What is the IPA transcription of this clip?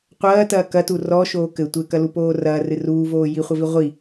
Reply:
qʷ ɐː t ɐː k ɐ t u r ɔ ʃ oː k ɘ tʷ ɘ k ɐ l u p oː r ɐː r ɨ r uː v oː j i χʷ ɘ v i ʁʷ i

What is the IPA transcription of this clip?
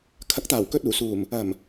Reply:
kʰ ɐ˨˥ k̚ t̪ aː˨˩ w k ɵ˧ t̚ uː˨˩ s uː˨˩ m | ɐ˨˩ m

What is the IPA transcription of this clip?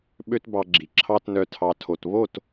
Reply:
ɓ ø˦ t b ɑ˧ ɡ͡ǁ i˨ ǁʰ ɑ˦ t n œ˧ tʰ ɑ˧ tʰ o˧ t β o˦˨ t

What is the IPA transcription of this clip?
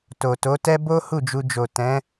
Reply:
t o˨ t o˨˦ t ɛ˦ b o˦ h u˦˨ d͡ʒ u˧ d͡ʒ o˨ t ɛ̃˨˦

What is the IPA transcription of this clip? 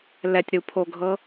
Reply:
l ɛ tʲ ɾ u pʰ o ɡʱ ɤ

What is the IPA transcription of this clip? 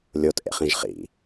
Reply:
lʲ o t ʔ ḛ χ ĩ ʒ χ ḭ

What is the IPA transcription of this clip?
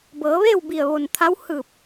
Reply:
b ɤː˩˧ ʋ eː˥˨ w b i˧˩ ə̯ ʋ o˧˩ n t̪ʰ a˧˥ w h ɯː˧˩ p̚

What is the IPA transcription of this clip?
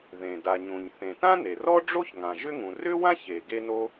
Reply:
ð ẽ˩ d a˩ ɲ ũ˩ ɲ θ ẽ˩ t ã˥ n e˩ r ɔ˥ ɖ͡ʐ o˥ ç ŋ ã˩ ʒ ʏ˥ ŋ ũ˩ r ʏ˥ w ã˥ ç e˩ ɡ e˥ n o˥

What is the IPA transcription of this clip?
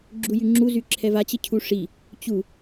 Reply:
ɡ͡ǁ u j y ŋ͡ǁ u z y ǁʰ ɛ v a t͡ɕ ə cʰ u ʂ i | t͡ɕ u

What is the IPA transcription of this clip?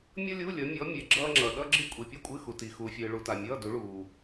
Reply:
mʲ ʌ˥ lʲ u˧˥˧ lʲ ʌ˨˦ mʲ ɔ˨˦ mʲ e˨˦ ɡ͡ǁ ʌː˥ ŋ͡ǁ ʌ˨ ɗ ʌ˥ ɡ͡ǁ ɨ˥ kʷʼ i˨ pʲ ʌ˥ kʷʼ ɨ˧˥˧ x u˨ t i˨ x u˨ fʲ ɨː˨ ɭ u˨ t a˨ mʲ ʌː˧˥˧ d u˨˦ ɭ uː˨

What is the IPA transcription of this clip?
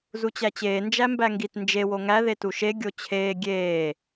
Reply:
z u t͡ɕ æ t͡ɕ eː n d͡ʒ æ m b æ ŋ ɡ i t n d͡ʒ e w o ŋ æ ð e t u ʃ e ɡʲ o t͡ɕʰ eː ɡʲ eː

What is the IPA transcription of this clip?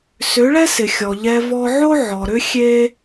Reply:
s ʏ˨˦ ɭ ɛ˦ s ɪ˨ xʲ ɔ˨ ʎ ɛ˧ v ɔ˧ ʕ o˦ ʕ ɔ˨ ɾ ʏ˦ xʲ e˦

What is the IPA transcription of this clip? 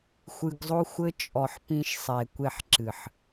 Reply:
xʷ ɨ˧ ɡ zˤ o˦ xʷ ɘ˦ t͡ʃʼ ɔ˨ ħ p ĩ˧ ʃ sˤ e˨ kʷ e˦˨ ħ ǁ ɨ˨ ħ

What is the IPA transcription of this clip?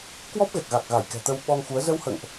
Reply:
k w ɔ˦˥ p̚ ɣ ɛ˨˩ k̚ ɣ a˨˩ k̚ ɣ a˧˩ j k ɛ̤˨˩ t̪ ə˧ w ɓ ɔ˧ ŋ x u˨˦ ə̯ z ə˧ w h ə̰ː˧˨ ŋ ʔ

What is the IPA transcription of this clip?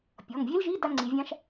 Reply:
pʲ ɔ˩˧˩ ŋ vʲ e˥ l ʒ i˧˥˧ d a˥ ŋ͡ǀ i˨˦ vʲ ã˥ ʃ

